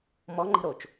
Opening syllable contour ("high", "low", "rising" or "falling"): rising